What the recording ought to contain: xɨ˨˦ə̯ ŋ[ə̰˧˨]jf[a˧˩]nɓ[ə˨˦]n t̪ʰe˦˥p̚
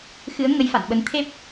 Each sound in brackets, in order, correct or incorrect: incorrect, incorrect, correct

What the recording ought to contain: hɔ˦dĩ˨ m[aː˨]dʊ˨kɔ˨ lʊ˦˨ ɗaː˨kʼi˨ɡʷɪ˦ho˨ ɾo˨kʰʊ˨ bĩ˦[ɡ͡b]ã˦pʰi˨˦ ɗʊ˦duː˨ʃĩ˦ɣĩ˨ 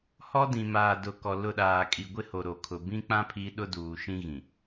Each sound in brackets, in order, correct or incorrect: correct, incorrect

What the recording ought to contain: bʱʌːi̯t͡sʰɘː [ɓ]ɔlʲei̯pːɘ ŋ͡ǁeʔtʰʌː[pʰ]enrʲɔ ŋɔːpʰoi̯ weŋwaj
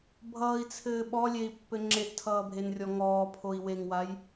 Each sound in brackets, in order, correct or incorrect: correct, incorrect

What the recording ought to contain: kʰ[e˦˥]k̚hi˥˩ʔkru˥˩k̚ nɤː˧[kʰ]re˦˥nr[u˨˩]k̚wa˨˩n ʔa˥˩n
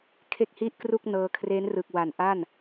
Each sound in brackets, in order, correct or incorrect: incorrect, correct, incorrect

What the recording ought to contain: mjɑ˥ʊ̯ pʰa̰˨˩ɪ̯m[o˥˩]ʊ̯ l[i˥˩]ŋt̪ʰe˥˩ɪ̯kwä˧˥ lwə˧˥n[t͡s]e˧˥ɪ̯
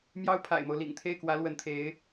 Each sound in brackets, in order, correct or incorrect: incorrect, incorrect, incorrect

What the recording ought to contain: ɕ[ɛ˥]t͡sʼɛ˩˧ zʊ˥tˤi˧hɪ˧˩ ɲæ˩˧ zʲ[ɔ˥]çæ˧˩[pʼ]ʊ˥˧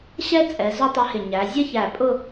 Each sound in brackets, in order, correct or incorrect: correct, incorrect, correct

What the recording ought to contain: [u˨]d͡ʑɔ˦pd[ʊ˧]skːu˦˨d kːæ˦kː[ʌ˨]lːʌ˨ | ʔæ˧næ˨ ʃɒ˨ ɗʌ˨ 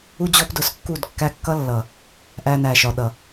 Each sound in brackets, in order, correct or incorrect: incorrect, correct, incorrect

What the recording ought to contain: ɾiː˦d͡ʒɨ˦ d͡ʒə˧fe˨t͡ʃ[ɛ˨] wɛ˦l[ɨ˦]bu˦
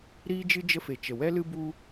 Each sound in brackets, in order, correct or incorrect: incorrect, correct

